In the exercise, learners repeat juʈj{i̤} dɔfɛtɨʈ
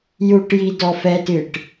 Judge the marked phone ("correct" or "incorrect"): incorrect